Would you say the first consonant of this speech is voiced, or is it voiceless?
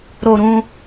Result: voiced